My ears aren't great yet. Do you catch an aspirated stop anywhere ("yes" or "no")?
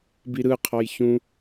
yes